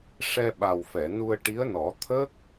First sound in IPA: ʂ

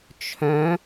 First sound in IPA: t͡ʃʰ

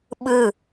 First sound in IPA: ɓ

